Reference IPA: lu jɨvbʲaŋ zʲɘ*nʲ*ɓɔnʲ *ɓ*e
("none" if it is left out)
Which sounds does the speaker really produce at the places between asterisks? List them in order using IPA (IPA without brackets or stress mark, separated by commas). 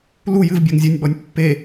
nʲ, pː